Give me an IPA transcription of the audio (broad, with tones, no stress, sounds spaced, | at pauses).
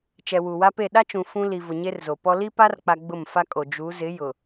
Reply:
t͡ʃ ɛ˨ w u˨ w a˦ p e˦˨ ɗ a˦ t͡ʃ ũ˨ f ũ˦ l i˨ v ʊ˨ ɲ e˦ r z o˨ p ɔ˦ l i˦ p a˦ r k͡p a˨ ɡ͡b ʊ˦˨ m f a˦ kʼ o˨ d͡ʒ u˨˦ z ɪ˨˦ j ʊ˨